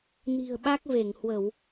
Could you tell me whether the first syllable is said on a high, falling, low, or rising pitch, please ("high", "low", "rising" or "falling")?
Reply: low